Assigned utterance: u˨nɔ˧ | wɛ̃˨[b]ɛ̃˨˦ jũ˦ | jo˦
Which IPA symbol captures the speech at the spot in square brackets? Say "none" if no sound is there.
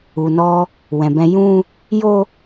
b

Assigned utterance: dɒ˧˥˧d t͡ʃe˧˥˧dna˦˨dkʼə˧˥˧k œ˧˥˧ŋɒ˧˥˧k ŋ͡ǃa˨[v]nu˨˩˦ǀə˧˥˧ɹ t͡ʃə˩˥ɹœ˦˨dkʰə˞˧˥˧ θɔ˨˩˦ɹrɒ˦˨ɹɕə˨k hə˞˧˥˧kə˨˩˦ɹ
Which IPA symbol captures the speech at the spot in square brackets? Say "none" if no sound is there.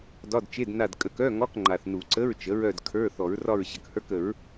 θ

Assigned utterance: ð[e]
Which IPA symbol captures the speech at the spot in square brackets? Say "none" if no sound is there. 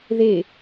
e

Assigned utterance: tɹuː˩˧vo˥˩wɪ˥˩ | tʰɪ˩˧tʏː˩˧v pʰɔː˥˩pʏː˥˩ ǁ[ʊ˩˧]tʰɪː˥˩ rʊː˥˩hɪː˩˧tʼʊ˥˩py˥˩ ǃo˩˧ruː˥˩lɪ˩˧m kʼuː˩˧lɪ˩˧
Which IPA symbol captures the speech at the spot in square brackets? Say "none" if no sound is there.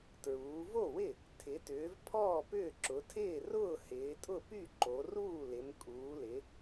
ʊ˩˧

